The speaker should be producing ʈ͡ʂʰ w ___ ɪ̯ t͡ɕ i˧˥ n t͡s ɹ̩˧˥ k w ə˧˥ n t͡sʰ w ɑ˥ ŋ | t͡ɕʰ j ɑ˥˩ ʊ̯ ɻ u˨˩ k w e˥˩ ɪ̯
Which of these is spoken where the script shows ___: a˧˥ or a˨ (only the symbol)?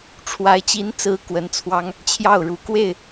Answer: a˧˥